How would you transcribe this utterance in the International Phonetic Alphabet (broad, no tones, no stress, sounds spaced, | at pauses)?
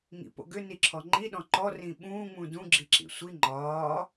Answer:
ŋ ḭ p o̰ ɡ ʏ n i ǁʰ ɔ ŋ͡ǃ i ɗ ɔ̃ ǃ ɔ r ĩ ɓ ũː ŋ͡m ũ d ũ ɡ͡ǁ i ǁ ḭ sʷ i ŋ͡ǃ ɒː